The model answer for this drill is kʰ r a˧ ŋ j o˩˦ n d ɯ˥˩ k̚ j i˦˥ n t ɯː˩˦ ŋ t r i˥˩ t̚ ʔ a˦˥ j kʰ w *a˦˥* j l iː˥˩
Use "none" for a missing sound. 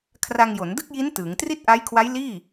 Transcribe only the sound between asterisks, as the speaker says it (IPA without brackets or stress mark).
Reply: a˦˥